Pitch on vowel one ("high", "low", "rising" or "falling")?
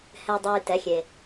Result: low